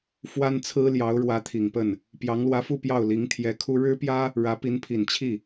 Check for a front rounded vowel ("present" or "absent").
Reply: absent